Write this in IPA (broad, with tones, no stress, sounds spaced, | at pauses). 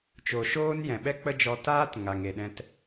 t͡ʃ o˨ ʃ oː˦ n j ɛ̃˨ ɓ ɛ˦ k͡p ə˦ d͡ʒ ɔ˧ t aː˦ t ŋ a˨ ŋ e˨ ɗ ɛ̃˧ t